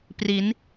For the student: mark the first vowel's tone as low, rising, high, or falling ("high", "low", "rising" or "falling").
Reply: rising